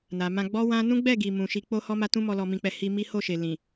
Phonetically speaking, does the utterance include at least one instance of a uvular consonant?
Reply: no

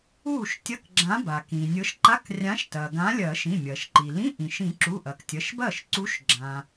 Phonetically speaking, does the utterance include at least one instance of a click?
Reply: yes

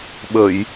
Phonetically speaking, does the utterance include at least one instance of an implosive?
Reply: yes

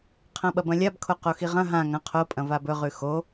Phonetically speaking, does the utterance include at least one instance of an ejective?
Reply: yes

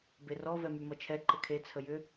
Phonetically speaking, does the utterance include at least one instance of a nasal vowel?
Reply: no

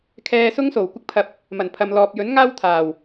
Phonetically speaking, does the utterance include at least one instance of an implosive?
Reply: no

